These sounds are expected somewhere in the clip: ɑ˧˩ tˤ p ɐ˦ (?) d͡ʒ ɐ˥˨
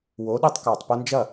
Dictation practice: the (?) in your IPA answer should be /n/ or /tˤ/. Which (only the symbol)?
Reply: n